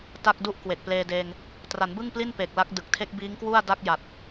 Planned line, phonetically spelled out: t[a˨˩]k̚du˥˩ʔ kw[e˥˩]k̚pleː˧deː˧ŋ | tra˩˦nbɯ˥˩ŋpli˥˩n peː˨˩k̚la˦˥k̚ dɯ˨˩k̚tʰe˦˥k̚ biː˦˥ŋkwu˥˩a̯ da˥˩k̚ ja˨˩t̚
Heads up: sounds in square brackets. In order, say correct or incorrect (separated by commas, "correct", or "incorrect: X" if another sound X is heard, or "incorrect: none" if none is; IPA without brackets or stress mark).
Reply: incorrect: a˥˩, incorrect: e˨˩